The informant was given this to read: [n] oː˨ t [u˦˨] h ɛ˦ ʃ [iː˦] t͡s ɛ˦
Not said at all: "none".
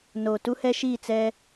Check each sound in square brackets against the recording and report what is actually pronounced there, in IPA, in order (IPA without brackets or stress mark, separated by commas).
n, u˦, iː˦˨